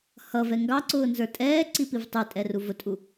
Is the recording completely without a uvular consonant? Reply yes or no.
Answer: yes